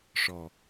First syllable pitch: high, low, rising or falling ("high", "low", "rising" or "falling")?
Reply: low